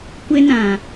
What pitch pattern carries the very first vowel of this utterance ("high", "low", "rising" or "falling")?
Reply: high